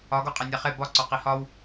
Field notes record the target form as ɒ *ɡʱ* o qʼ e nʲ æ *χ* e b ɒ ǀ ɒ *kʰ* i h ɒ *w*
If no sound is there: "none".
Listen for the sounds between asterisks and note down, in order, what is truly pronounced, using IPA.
ɡ, χ, q, w

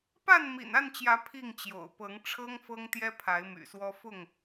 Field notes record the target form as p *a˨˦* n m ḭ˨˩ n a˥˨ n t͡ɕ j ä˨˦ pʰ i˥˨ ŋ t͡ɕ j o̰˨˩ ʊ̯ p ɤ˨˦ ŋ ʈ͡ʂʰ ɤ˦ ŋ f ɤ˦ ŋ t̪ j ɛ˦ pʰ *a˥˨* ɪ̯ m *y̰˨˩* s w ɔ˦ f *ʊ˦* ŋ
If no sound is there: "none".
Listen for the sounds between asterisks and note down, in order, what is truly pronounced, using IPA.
a˥˨, a˨˦, y̰˨˩, ʊ˥˨

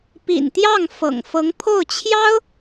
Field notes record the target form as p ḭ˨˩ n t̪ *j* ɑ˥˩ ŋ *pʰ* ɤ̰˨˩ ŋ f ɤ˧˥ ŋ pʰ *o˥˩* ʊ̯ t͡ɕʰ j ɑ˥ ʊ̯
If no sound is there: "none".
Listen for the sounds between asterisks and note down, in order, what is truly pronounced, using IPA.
j, f, o˥˩

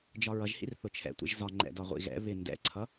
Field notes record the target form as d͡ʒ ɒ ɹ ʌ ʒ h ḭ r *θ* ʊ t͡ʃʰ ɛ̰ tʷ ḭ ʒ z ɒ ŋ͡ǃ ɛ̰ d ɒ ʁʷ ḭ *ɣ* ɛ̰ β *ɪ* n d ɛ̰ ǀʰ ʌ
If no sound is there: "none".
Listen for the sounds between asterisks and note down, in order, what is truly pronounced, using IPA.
θ, ɣ, ɪ

